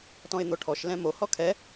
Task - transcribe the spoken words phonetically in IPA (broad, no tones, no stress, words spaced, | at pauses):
tɔ̃ɪ̯n̪oʈʰɔʃ lɛ̃mo hɔkʰɛ